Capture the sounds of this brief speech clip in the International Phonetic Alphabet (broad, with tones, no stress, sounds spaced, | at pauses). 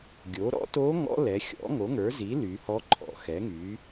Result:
ɡʲ o˩˥ ɾ ɔ̰˧˥ t o˧˥ ŋ ɔ̰˧˥ l ɛ˩˧ xʲ ɔ̰˩˥ ŋ o˩˥ ŋ ə˞˩˥ z i˩˥ l y˩˧ h ɔ˧˥ ǃʰ ɔ̰˩˧ x ɛ˩˥ ŋ y˩˥